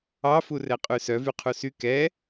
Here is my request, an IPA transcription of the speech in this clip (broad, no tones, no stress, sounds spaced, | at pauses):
ɑ f u r ɛ qʼ ʉ s œ v y qʰ u s y k ɛ